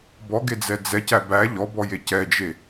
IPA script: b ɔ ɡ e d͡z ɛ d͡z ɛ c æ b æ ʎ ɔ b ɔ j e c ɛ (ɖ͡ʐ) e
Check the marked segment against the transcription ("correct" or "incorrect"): incorrect